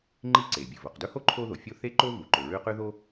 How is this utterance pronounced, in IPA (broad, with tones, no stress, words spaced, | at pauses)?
ŋ͡ǃi˥ǀe˩ bʲɨ˩ vo˩qdɵ˥ho˥ ǃʰo˥ðo˩fʲo˥ θe˥ǃo˥ vu˩ǃɵ˩ɹʉ˥ qʉ˥ðo˥